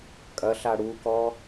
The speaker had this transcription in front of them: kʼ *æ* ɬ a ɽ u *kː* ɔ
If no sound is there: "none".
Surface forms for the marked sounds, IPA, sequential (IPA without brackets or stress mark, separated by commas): ɐ, k